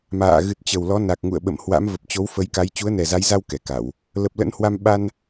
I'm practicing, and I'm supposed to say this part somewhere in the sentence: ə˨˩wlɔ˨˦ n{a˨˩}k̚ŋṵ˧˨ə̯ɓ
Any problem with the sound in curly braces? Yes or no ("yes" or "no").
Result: no